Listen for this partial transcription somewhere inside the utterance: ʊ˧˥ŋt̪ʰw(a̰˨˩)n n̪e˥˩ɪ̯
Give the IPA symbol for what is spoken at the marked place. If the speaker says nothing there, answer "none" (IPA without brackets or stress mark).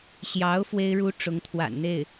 a̰˨˩